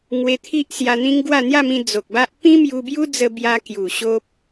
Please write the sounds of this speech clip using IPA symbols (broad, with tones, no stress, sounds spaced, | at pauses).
ŋ w e˧ t̪ʰ i˦ ʔ s j a˧ n̪ ĩ˦ ŋ ɡ w a˥˧ n̪ j a˥˧ m ĩ˧ d͡z o˨ k̚ b a˦ ʔ p ĩ˦ m j u˧ b j u˦ d͡z ə˧ b j a˧ k j u˨˩ ɕ o˦ p̚